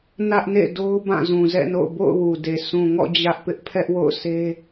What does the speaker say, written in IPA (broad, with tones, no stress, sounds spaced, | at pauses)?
n ä˦ ʔ n ḛ˦˨ d o˦ ʊ̯ b ã˦˨ z ũ˨ z ɛ̰˦˨ n o̰˦˨ ʊ̯ b o̰˦˨ ʊ̯ w u˨ d e˨ sʰ ũ˨ ŋ ɔ̰˦˨ d͡ʑ ä˦ ʔ p ɪ˦ ʔ pʰ ɛ˦ ʔ w o̰˦˨ ʊ̯ s e˦